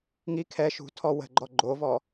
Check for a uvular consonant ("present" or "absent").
absent